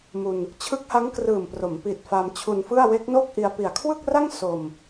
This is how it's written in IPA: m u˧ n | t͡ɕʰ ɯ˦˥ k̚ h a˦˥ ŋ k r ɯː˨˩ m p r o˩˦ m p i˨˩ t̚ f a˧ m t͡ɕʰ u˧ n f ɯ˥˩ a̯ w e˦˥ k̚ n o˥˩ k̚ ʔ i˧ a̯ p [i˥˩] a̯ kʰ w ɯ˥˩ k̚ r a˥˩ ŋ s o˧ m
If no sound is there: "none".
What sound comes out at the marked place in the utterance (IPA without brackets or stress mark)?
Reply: i˨˩